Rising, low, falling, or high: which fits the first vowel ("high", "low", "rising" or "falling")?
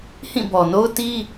falling